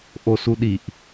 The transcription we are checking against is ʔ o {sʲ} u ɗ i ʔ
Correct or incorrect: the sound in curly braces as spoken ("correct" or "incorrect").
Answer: incorrect